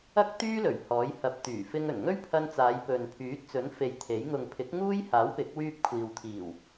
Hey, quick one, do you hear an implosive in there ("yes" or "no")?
no